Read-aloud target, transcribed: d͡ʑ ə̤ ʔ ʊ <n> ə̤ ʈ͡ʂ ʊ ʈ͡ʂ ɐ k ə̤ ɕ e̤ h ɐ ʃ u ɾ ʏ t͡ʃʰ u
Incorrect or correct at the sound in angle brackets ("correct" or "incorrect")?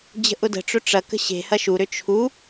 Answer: incorrect